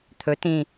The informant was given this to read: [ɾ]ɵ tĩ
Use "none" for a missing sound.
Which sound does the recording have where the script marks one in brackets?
t̪ʰ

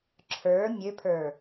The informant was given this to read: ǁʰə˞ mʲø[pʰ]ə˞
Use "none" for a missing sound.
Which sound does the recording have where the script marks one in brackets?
pʰ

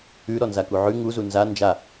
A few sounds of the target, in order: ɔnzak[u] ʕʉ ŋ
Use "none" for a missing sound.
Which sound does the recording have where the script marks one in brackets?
u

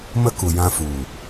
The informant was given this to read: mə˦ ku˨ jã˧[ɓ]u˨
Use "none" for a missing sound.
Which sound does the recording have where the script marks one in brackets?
f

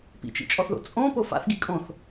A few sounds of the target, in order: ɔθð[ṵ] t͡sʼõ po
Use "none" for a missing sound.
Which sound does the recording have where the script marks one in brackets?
o̰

